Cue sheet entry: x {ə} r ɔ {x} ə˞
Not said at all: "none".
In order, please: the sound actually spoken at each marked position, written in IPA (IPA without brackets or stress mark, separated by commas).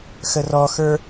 ə, x